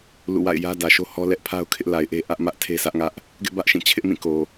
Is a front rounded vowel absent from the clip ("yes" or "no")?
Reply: yes